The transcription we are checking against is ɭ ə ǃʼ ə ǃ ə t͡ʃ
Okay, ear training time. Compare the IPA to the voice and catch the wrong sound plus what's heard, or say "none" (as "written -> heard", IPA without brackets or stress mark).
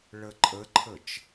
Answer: ǃ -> ǃʰ